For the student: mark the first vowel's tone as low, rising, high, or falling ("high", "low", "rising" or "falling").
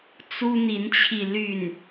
high